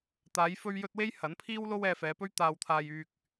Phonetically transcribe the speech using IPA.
t̪ aː˨˧ j f ɵ˧ ɥ j ɵ˧ t̚ w e˥ j h ɐ˨˥ n pʰ iː˥ w l o˥ w ɛː˧ f ɛː˨˧ p ɵ˥ ɥ t̪ aː˨ w t̪ʰ aː˨ j yː˨ k̚

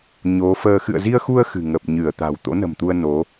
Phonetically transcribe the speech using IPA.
ɲ o˨˦ f əː˧ x ɨ̰˧˨ ə̯ z i˧ ə̯ x u˧ ə̯ x ɨ̤˨˩ ŋ ə˨˩ p̚ ɲ ɨ˧˩ ə̯ t̪ a̤˨˩ w t̪ o̰˧˥ n ə̤˨˩ m t̪ u˧ ə̯ n o˨˦

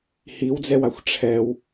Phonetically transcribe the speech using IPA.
h i w d͡z ɛ w a xʷ ʈ͡ʂʰ ɛ w

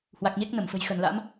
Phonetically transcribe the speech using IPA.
h w a˨˩ k̚ ɲ e˦˥ k̚ n ə˧˩ m f ə̤˨˩ j x ə˧˩ n l a̰˧˥ m

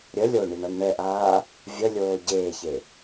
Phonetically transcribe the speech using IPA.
ɾʲ ə lʲ o ɳ i ɳ a n ɳ ɛ ʔ aː | vʲ ə lʲ oː ɟ eː ç e

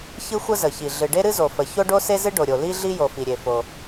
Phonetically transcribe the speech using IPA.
ç ɨ˥ xʷ ə˥ z ə˩ ç i˩ ɮ ɨ˩ ɖ e˥ ɾ ɨ˥ z o˩ f ə˩ ç o˥ ɖ o˥ s e˥ z ɨ˥ ɖ o˩ ɾʲ o˩ l i˥ ɮ i˥ j o˩ f i˩ ɾʲ e˩ f o˩

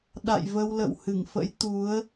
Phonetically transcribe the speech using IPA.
ɗ a̰˧˨ j v ə˧ w l ə̰˧˨ w h ɨ˧˩ ŋ f ə̰˧˥ j t̪ u˨˦ ə̯

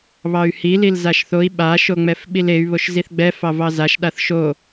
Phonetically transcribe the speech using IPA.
β ɑ y̯ h i l i l z a ʃ θ o i̯ ɓ a ʃ o ŋ͡m ɛ f ɓ i l e y̯ β o ʃ z i θ ɡ͡b ɛ f ɑ v ɑ z a ʃ ɗ a θ ʃ o

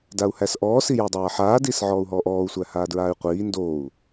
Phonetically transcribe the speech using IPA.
d a u̯ h æ s ʔ ɔː s i j a dˤ aː ħ aː d iː s ʕ ɔː u̯ ɦ ɔː ʔ ɔː u̯ sʷ æ h aː d ɹ aː y̯ qʷ iː n d oː u̯

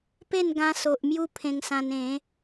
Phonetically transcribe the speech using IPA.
p e˥˧ n ɡ ã˧ s o˨ ʔ m j u˦ pʰ ẽ˧ ŋ s ã˧ n ẽ˨˦

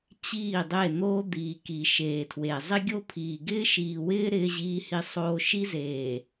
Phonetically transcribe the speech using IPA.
t͡ɕ iː˦˨ dˤ e˦˨ n̪ oː˦ d̪ iː˨ k i˨ ʃ eː˨ tʰ w e˨ zˤ ɪ˦ ɡʲ o˦ pʰ iː˨ ɡ ɪː˦ ʃ iː˨ w ɪː˦ ɾ ɪː˦ ʑ iː˦ h i˦ sˤ oː˦ ʃ i˦ z eː˨

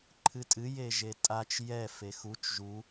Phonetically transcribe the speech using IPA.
ǃʰ ɨ tʼ ɨ j e ʒ e tʼ a t͡ʃ j ɛ f e x u t͡ʃ ʒ u

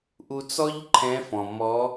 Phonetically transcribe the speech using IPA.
ʔ u˧ t͡s ɔ˥ ʎ ǃʰ ɛ̃˧˥ f ɔ̃˩ m ɔ˧˥

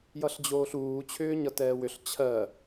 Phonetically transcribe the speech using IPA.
j ʌ ɬ d͡ʑ oː ɬ uː t͡ɕʰ ʏː ɲ ʌ t ɛː w ʏ ɬ t͡ɕʰ ɜ

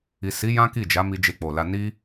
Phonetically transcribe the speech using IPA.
i˨ s i˨˦ j ã˦ k i˦˨ d͡ʒ a˨˦ m i˧ d͡ʒ e˧ k͡p o˨ l a˧ n i˦

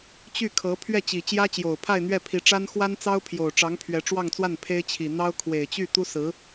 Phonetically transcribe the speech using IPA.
t͡ɕ y˥˩ kʰ ɤ˧˥ pʰ ɥ ɛ˥˩ t͡ɕ i˨˩ t͡ɕ j ä˥ t͡ɕ j o˨˩ ʊ̯ pʰ a˥˧ ɪ̯ n̪ ɥ ɛ˥˩ pʰ i˧˥ ʈ͡ʂ a˥ n x w a˥ n t͡s ɑ˥ ʊ̯ pʰ j o˨˩ ʊ̯ ʈ͡ʂ ɑ˧˥ ŋ pʰ ɥ ɛ˧˥ ʈ͡ʂ w ɑ˥˧ ŋ t͡s w a˥˩ n pʰ e˥ ɪ̯ t͡ɕʰ i˨˩ n̪ ɑ˥ ʊ̯ kʰ w e˨˩ ɪ̯ t͡ɕ y˥˩ t̪ u˥ s ɹ̩˧˥

